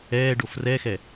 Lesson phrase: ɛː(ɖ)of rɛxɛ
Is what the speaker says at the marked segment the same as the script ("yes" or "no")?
yes